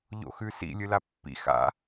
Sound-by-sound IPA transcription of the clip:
ʎo̰xʉsḭ lʲɨlapːḭ xa̰

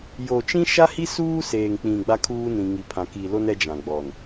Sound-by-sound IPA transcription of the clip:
jo˨t͡ʃĩ˦ʃa˦hi˦ suː˦seː˨ŋk͡pĩ˨ ɡ͡ba˦kʰuː˦nĩ˨ ŋi˨pʰã˨ki˨lo˦n ɛ˦d͡ʒã˨ɡ͡bɔ˨n

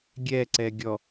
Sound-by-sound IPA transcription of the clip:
ɡʲɛǀɛ ɡʲɔ

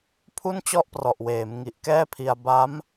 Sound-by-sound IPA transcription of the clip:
pʰu˥˩nt͡ɕɔ˥˩ʔprɔ˨˩ʔweː˩˦m ŋi˨˩ʔkɛː˥˩pʰi˧a̯ ba˦˥m

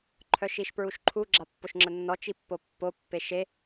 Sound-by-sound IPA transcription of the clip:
ǃʰœʃiʃpɹuʃǃʰu ɡ͡ǁapːoʃŋ͡ǁənːɔ t͡ʃipːopːo pːeʃe

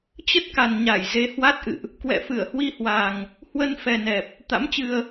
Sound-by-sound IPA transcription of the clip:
t͡ɕə˦˥t̚ka˨˩nɲa˧˩j ze˨˦ hwa˦˥t̚ʔɨ̰˧˨ʔ | kwɛ̰˧˨fɨ˧˩ə̯hwi˧hwa˨˩ŋ | hwə˧nfɛ˨˩nɛ˨˩p̚ | t̪a̰˧˥mt͡ɕɨ˧ə̯

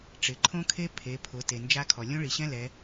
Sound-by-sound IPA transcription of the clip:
ʈ͡ʂɪ˩ ǃʰõ˦˥kʰe˦˥ pʰe˩˧pʰʊ˩˧ te˩nd͡ʒa˦˥kʰɔ˩ lʲõ˦˥ɭi˩ɕɛ̃˦˥ lɛ˩˧

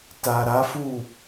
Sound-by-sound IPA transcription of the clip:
ta˨ɾa˨˦fu˦˨

